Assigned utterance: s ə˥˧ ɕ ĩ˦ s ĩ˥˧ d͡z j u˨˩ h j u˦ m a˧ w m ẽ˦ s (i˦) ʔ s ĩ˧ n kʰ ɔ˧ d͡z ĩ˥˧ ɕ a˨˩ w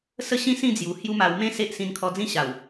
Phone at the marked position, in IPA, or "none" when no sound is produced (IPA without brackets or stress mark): e˦